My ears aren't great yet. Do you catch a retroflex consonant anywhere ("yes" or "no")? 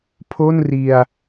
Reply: no